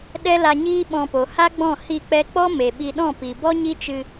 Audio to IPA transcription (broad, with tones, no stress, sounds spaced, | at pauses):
ɗ ɛ˦ l a˧ ɲ iː˦ ɓ ɔ̃˧ p o˨ h a˦ ɡ͡b ɔ̃˦˨ h i˦˨ k͡p ɛ˦ k͡p ɔ˦ m e˨ ɓ i˧ ɗ ɔ̃˦˨ p i˨ b ɔ˦ ɲ i˦ t͡ʃ ɨ˧